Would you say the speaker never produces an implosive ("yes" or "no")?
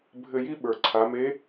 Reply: no